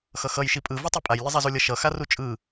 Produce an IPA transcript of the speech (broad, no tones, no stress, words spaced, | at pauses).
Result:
xʌxʌj ʃipʼɯ vɯtˤipʼaj lʲʌzˤɛzulʲʌ ʃʌ xarut͡ʃʼɯ